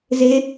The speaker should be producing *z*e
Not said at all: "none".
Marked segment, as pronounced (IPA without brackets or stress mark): z